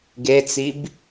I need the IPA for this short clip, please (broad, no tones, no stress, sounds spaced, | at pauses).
ɡ e t͡s i b